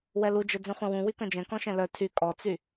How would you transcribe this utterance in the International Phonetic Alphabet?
w ɛ l u d͡ʒ ɘ d͡z ɛ̃ χʷ œ̃ w ũ w y k œ̃ d͡ʒ ɛ̃ k ɔ̃ ʃ ɛ̃ l œ tʰ y kʼ ɔ t͡s y

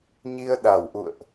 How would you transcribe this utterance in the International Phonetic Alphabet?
ɲ i˧ ə̯ ɗ a˨˩ w ʔ ṵ˧˨ ə̯ ʔ

